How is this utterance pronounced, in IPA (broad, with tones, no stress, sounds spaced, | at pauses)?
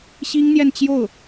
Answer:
ɕ i˥ ŋ n̪ j ɛ˥˧ n t͡ɕ j o˥˩ ʊ̯